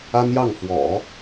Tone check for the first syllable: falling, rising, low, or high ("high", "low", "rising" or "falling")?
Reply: high